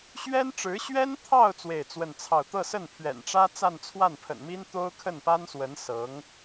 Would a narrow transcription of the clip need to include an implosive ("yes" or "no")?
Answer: no